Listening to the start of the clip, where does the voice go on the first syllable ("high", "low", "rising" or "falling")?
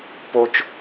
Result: high